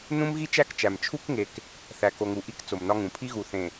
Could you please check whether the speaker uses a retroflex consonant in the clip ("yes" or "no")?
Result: no